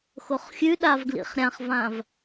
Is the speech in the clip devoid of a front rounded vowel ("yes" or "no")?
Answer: yes